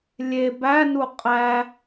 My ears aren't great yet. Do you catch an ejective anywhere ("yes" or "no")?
yes